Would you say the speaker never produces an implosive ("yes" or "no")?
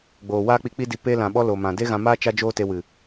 no